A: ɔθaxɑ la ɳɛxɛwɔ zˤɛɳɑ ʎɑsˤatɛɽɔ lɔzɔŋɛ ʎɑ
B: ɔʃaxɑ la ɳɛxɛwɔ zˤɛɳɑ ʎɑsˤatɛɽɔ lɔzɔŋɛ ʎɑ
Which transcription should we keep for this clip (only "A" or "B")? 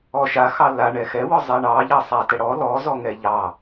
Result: B